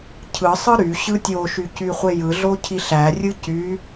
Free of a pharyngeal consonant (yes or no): yes